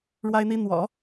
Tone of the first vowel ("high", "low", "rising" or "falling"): high